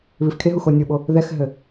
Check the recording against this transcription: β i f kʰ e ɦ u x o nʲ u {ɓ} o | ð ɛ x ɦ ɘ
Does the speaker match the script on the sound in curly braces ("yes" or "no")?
yes